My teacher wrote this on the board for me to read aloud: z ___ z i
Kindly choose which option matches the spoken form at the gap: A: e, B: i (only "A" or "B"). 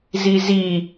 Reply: B